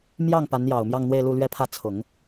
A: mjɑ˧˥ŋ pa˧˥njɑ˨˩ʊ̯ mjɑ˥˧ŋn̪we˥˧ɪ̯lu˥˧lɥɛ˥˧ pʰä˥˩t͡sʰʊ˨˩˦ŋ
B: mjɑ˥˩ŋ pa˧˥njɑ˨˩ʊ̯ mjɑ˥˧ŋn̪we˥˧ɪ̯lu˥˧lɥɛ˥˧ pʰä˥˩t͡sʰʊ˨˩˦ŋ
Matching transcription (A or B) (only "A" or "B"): B